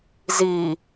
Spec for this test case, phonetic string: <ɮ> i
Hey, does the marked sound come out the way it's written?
no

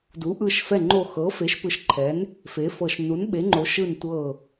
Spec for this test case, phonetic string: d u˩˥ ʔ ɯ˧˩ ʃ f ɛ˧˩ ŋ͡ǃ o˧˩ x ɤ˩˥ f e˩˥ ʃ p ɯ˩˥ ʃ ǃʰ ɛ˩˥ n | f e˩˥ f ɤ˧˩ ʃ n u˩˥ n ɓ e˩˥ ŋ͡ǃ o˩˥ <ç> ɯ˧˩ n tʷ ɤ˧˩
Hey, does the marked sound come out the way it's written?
no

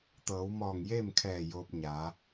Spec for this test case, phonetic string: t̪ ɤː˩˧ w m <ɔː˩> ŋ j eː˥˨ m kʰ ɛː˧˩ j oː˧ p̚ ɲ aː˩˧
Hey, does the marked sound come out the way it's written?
no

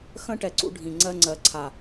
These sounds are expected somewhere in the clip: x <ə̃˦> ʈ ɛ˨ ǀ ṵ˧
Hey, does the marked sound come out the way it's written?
yes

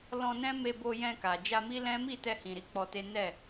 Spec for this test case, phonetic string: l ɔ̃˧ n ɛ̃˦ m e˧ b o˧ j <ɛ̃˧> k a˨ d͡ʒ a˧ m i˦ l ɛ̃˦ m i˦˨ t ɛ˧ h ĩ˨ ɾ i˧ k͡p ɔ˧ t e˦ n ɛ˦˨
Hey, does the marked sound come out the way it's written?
yes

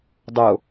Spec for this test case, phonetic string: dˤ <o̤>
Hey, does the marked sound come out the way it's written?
no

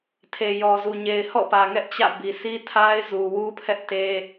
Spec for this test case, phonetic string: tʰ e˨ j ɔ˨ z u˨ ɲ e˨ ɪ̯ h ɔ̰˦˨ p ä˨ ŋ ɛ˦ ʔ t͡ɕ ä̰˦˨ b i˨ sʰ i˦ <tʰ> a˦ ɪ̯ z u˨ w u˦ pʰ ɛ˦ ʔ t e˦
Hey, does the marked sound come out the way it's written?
yes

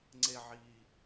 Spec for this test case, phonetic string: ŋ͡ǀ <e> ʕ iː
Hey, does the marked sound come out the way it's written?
yes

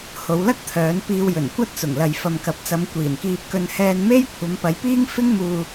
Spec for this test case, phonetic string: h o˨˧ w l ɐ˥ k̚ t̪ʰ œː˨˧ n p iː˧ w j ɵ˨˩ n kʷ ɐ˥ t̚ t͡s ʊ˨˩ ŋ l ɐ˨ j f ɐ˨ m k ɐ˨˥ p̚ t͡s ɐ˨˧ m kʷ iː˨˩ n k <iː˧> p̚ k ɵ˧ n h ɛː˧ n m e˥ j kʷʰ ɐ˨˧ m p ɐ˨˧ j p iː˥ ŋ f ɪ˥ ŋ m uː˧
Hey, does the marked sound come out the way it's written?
yes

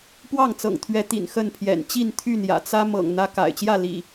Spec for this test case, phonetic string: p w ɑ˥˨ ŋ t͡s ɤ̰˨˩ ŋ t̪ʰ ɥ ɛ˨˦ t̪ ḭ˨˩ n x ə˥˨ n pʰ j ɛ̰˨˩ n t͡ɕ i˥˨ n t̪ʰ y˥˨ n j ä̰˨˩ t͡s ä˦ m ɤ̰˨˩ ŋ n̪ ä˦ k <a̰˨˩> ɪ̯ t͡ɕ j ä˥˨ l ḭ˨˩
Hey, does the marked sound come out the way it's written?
yes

